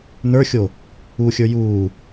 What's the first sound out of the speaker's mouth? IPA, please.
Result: n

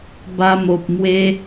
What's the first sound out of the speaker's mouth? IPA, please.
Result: b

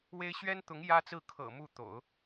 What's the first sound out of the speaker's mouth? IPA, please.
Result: w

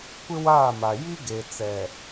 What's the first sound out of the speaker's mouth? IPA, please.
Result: kʷ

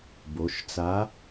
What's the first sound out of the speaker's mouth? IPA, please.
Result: b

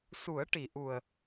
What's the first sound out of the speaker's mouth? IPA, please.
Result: s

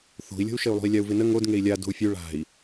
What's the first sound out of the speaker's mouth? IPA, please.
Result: θ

